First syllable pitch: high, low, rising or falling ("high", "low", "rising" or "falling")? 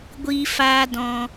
high